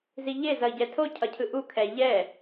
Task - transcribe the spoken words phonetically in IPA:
ziʎe zʌi̯ɟɛtʰo cʰʌcʰɯʔu kʰɛ ʎɛ

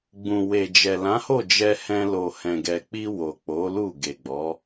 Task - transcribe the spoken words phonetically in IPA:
ɡ͡bũ˨we˨d͡ʒɛ˨ lã˨˦ho˦˨d͡ʒɛ˧hɛ̃˧ lo˨hɛ̃˨ɡɛ˨k͡pi˧ wo˨k͡po˨˦ lu˦˨ɡe˨ɡ͡bɔ˨˦

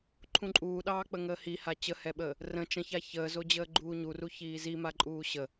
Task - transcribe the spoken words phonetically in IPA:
ǃʰũǃʼuːɗɑː k͡pəŋəːhiha t͡ɕəhɛɓəː | rə̃ t͡ʃə̃ça çəːzod͡ʑəː ɡ͡ǃuːɲuru çiːzimaǃʼuː ɕə

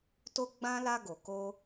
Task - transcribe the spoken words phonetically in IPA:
to˦ɡ͡bã˦ la˧ɡo˨ko˧

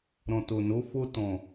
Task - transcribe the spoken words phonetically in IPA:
ɾɔ̃˨ to˨no˨˦fo˦ tɔ̃˦˨

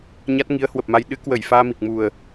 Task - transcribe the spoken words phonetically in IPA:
ɲa˦˥t̚ŋi˨˦ə̯hwə˨˩p̚ma˧j ɗɨ˨˦kwə˧˩j faː˧mi˨˩k̚mu˨˩ə̯

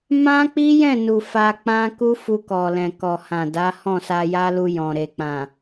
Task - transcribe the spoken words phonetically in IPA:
mã˦k͡pi˦jɛ̃˦˨nu˨ fa˧k͡pã˦ ku˦fu˧kɔ˨lɛ̃˨ kɔ˨hã˨ da˨˦ hɔ̃˦˨sa˧ja˦lu˧ jɔ̃˨ ɾe˨k͡pã˨

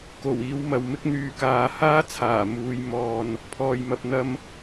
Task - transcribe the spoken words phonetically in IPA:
ko˨˩wiː˨˧w mɐ˨wmɪ˥k̚n̪yː˧kaː˧ haː˥t͡sʰaː˨˩ muː˨˧j mɔː˧n | pʰɔː˨jmɐ˧p̚ n̪ɐ˧m

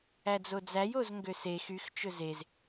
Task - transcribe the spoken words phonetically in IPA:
æd͡zod͡zæj ozŋɡøse xyx t͡ʃɵzez

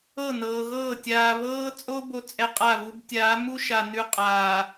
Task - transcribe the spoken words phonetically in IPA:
ɤ˦˨nɤː˨ɣɤː˦˨ tʲaː˨βɤː˦t͡sʼo˦ bo˦t͡sʼɛ˦qʼa˦˨βu˦b tʲaː˨˦mu˦ʃa˨ nʉ˦qʼaː˨

